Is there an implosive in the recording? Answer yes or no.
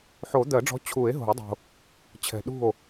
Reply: yes